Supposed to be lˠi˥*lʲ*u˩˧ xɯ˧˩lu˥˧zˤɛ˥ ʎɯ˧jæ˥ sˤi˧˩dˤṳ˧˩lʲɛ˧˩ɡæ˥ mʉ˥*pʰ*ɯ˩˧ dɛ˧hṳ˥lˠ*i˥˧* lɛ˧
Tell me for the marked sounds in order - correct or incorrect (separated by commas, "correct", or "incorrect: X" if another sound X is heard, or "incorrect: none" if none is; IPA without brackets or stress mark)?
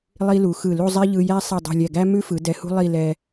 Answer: incorrect: l, incorrect: f, correct